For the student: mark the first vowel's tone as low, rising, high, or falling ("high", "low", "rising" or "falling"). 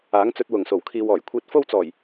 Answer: rising